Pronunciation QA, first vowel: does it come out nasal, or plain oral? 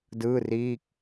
oral